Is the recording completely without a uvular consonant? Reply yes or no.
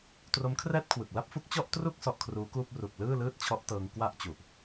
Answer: yes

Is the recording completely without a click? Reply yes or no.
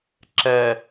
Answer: no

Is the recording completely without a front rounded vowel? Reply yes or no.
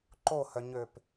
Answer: no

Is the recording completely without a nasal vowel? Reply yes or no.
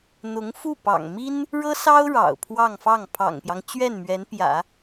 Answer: yes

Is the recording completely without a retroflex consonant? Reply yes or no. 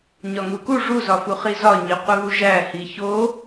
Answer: no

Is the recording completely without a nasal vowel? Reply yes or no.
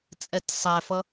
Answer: yes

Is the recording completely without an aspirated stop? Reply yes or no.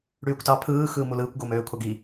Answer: no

